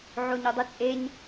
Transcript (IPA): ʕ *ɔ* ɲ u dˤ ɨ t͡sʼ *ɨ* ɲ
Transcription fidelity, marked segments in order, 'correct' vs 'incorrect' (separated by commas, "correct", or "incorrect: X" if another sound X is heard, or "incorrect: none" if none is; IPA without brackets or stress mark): incorrect: o, incorrect: e